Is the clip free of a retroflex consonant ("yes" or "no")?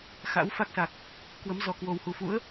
yes